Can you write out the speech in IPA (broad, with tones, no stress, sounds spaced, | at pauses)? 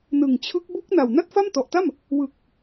n ɯ˨˩ ŋ t͡ɕʰ ɯ˦˥ k̚ b u˦˥ k̚ n a˨˩ w n a˥˩ t̚ f a˥˩ m t ɔ˨˩ ʔ t a˥˩ m | w ɯ˨˩ k̚